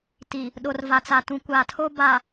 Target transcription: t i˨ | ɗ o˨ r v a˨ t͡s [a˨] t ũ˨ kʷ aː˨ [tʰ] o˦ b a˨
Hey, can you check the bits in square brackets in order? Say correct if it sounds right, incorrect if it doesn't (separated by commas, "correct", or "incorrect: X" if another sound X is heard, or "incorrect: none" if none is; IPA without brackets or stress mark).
correct, correct